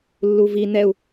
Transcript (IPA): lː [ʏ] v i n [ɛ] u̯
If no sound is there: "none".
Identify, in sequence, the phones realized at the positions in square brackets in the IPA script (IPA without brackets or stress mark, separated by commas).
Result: u, ɛ